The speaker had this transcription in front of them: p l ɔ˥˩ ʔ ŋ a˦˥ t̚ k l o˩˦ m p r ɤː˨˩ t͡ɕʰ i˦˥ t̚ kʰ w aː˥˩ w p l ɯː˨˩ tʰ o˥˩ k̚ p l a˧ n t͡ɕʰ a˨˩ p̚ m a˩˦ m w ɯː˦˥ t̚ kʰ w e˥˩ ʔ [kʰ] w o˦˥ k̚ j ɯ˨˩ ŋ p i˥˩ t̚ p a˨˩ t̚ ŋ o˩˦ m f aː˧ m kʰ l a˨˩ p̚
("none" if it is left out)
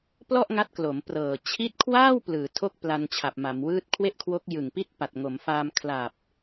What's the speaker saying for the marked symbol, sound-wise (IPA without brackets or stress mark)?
kʰ